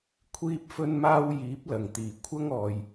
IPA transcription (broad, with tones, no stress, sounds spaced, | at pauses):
kʷʰ iː˧ p̚ f ɵ˧ n m aː˧ w j iː˨˥ p̚ l ɐ˨˩ ŋ t̪ iː˨˩ kʷʰ ɐ˧ ŋ ɔː˨ j